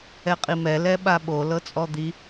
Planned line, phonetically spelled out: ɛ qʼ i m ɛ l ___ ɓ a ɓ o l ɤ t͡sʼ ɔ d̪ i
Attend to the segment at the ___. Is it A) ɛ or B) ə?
A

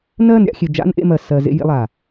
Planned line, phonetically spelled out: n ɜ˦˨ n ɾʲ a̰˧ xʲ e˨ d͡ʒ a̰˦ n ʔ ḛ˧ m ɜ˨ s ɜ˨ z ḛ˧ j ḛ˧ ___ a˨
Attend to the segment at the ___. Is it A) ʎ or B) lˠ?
B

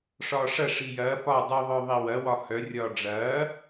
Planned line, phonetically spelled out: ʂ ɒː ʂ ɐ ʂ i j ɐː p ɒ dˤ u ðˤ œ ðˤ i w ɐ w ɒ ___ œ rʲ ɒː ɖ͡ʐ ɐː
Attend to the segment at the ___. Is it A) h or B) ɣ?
A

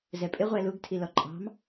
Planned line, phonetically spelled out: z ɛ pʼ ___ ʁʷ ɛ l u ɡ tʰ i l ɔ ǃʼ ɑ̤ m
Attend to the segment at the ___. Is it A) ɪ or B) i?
A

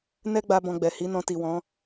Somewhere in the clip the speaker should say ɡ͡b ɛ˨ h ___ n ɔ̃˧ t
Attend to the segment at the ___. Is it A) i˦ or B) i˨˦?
B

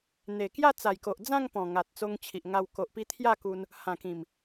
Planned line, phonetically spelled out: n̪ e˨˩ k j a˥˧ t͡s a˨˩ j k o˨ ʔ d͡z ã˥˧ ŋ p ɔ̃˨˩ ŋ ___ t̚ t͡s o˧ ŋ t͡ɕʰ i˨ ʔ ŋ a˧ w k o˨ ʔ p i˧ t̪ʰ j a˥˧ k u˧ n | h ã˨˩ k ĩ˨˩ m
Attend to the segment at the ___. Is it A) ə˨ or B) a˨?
B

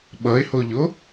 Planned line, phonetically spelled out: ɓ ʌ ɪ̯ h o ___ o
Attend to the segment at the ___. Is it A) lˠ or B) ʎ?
B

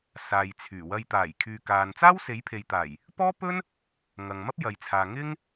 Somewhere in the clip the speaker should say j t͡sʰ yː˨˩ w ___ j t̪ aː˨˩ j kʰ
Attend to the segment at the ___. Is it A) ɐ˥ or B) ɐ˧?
B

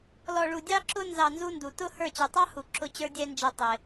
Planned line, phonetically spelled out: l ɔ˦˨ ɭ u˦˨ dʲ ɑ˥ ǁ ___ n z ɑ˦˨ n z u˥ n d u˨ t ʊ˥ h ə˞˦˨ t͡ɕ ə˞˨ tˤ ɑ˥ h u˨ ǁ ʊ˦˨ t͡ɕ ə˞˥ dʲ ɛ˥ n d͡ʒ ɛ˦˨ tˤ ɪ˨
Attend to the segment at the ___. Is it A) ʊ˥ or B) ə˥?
A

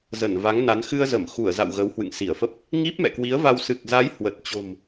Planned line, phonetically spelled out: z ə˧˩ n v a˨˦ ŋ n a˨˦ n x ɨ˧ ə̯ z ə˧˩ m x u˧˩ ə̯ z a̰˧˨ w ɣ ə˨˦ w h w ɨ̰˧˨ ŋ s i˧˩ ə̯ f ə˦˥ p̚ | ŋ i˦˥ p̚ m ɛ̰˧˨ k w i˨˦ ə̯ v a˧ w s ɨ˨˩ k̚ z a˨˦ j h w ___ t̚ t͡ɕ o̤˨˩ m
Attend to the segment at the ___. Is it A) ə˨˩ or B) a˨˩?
A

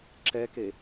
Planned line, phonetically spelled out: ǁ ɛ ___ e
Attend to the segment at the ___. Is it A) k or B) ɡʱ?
A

